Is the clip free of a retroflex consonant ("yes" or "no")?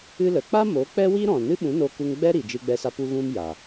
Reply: yes